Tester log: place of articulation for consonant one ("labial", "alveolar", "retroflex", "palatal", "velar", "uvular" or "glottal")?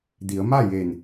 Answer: alveolar